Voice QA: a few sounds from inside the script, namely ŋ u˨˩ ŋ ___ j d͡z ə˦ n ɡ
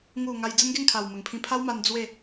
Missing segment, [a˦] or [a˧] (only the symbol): a˧